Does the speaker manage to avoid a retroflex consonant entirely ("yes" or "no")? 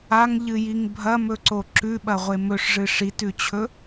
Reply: no